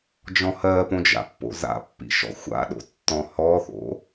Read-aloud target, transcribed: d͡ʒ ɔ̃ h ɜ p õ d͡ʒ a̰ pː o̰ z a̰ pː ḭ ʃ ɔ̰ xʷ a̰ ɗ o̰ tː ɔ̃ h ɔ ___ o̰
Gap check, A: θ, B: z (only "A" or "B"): A